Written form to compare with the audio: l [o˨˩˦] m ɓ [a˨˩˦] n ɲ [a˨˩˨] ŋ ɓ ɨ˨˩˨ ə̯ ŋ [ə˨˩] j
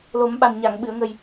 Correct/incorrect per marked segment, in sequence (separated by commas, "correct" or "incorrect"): correct, incorrect, correct, correct